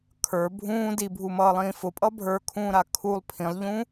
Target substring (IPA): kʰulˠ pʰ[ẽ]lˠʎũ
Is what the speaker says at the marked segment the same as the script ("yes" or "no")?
no